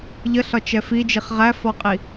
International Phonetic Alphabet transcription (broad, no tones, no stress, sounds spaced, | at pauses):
ʎ ə ɬ ɒ t͡ʃ ɛ f i d͡ʒ i χ ʁ æ f ɔ qʼ i